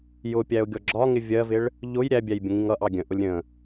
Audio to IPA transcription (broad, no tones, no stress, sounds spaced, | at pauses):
j ʊ pʲ æ ʊ̯ ɡʲ ɔ ɡ͡ǁ ɒ ŋ ɪ vʲ ɜ v ɪ ɭ | ʎ ʊ j ɾʲ æ bʲ æ j bʲ ə̃ ŋ ĩ ŋ ʌ ʔ ɑ ɡʲ ə̃ ʔ ʊ lʲ ɾʲ ə̃